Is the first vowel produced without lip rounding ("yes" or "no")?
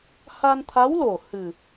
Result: yes